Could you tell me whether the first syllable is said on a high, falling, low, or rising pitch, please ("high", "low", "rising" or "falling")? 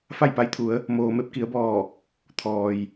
falling